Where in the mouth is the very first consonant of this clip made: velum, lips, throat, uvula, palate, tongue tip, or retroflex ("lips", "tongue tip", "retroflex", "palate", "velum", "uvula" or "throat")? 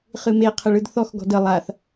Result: uvula